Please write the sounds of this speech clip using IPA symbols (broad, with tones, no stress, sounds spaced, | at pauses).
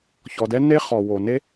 ç ɔ˨ d ɛ˦ n e˦ χ ɔ˨ w o˨ n e˦